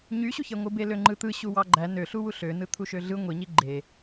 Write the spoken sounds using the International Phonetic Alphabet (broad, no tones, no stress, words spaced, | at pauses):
ɲyɕuçeŋʷɯ beløŋ͡ǃɯt̪ɯ ɕuwɑɡ͡ǃæ nø ɬuwuɬønɯ t̪ʰuʃøɮɯ ŋʷiɲi ɡ͡ǃe